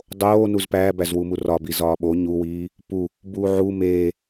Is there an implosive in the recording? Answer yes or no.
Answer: yes